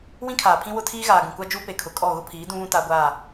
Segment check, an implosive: absent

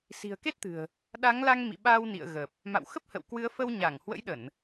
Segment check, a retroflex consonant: absent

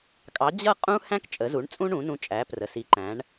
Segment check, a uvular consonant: present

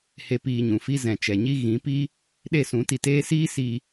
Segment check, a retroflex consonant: absent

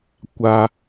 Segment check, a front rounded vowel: absent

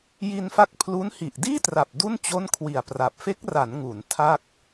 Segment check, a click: absent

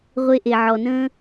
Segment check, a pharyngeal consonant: present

